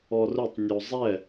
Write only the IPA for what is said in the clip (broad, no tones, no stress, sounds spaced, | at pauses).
ɔ r ʊ tˤ nʲ o zˤ ɛ